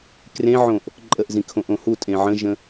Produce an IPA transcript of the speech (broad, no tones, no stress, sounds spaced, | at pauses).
k r ẽ ʕ õ ʔ | ǃʼ ə ʔ z ĩ kʰ õ ʔ õ h u tʼ ẽ ʕ ə̃ ʒ ə̃